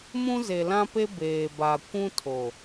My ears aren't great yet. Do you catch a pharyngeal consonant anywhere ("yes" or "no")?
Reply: no